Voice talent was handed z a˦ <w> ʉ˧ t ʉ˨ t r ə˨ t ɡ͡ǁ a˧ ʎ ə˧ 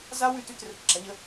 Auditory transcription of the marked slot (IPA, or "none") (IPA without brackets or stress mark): w